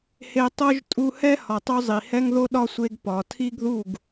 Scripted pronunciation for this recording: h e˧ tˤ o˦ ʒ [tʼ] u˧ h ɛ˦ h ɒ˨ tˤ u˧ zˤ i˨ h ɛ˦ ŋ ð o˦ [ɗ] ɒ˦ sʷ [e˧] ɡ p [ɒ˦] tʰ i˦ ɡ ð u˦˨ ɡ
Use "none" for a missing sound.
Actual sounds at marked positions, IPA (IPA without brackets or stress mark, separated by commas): tʼ, ɗ, e˧, ɒ˨